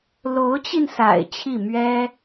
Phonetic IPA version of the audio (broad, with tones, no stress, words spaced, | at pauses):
lo˧˥ʊ̯t͡ɕi˧nsa̰˨˩ɪ̯ t͡ɕʰi˥˩ mɥɛ˥